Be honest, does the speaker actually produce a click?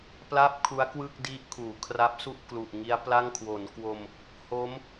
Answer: no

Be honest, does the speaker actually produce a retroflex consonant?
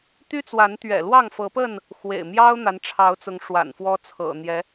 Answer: yes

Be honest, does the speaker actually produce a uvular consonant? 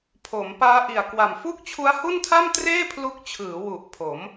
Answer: no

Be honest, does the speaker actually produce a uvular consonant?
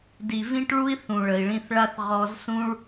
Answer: yes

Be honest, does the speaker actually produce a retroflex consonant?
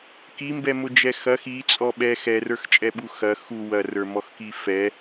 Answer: no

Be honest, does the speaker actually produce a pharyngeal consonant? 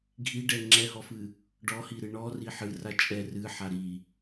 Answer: yes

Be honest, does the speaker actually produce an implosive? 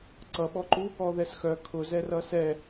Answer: yes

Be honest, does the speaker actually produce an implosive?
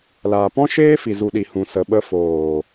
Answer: yes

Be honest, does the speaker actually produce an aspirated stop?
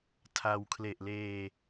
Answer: yes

